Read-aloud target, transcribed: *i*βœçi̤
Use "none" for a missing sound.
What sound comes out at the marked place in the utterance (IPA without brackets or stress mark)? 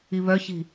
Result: i